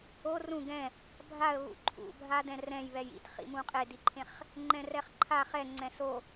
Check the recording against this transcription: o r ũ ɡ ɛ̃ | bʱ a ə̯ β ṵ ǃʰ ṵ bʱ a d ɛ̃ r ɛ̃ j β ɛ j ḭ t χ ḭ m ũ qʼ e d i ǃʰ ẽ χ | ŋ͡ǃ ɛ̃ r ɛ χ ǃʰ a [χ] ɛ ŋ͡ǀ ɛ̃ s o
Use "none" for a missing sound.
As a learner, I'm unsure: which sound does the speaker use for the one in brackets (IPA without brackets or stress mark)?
χ